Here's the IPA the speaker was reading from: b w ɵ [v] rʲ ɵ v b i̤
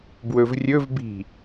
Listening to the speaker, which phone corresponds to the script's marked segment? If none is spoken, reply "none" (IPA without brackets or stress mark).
v